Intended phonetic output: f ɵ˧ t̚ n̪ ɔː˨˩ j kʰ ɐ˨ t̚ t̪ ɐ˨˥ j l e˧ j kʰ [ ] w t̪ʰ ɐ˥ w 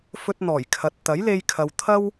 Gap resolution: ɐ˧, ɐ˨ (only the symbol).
ɐ˨